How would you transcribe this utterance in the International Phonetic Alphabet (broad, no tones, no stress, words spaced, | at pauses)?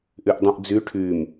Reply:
ʔyʔdˤũʔd͡zy ʈʰym